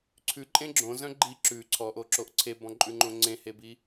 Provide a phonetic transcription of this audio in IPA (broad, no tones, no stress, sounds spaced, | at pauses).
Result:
ǀʰ ʉ ǃʼ ẽ ɡ͡ǁ õ z œ̃ ɡ͡ǃ i ǁ ʉ ǀʰ ɔ ʔ o ǁ o ʔ ǀʰ e b ɔ̃ ǃʼ ʉ ŋ͡ǃ õ ŋ͡ǀ ẽ h e b i